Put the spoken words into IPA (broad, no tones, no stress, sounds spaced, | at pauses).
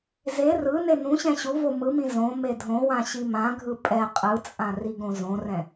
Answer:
z e r ɯ n e n ũ ɕ ɛ̃ ɕ u v o m ɯ m ĩ z õ m e dʱ õ w ã ɕ i m ã ɡʱ ɯ pʼ ɛ qʼ ɯ t͡sʼ ã r i ɡ õ z õ r ɛ̃